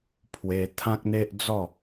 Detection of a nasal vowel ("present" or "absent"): present